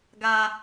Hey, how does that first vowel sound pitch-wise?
high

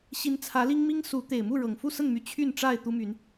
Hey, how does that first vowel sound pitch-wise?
rising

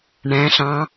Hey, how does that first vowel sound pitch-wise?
rising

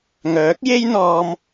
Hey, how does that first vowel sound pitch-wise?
rising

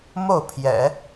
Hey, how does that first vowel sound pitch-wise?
falling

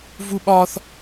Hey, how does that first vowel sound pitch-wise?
high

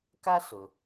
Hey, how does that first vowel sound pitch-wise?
high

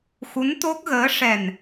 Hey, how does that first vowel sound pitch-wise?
rising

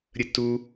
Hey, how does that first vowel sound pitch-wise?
high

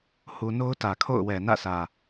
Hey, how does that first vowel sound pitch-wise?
low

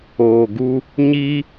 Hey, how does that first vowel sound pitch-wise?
low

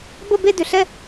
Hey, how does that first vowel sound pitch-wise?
falling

